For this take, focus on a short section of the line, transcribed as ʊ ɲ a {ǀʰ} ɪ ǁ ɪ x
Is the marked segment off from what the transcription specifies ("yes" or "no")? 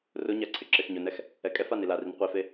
no